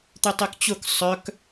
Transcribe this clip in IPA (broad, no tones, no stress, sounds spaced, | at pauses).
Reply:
t̪ y tˤ y k t͡ɕ ʊ k sˤ œ k